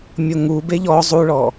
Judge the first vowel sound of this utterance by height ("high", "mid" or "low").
mid